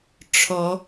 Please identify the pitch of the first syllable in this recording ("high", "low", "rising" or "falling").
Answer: rising